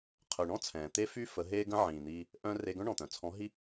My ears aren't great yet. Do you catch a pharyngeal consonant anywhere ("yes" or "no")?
yes